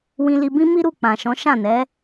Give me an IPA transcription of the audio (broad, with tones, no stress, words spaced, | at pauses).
wĩ˧li˧bĩ˦ mi˦ɾu˦˨ k͡pã˨ʃɔ̃˨˦ ʃã˦˨nɛ˨˦